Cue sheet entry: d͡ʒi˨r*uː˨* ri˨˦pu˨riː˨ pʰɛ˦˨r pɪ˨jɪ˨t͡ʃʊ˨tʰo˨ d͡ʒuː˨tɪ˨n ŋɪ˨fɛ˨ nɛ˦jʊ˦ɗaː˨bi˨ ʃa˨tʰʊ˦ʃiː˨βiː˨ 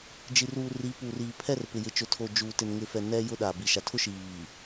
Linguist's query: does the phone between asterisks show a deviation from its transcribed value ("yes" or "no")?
no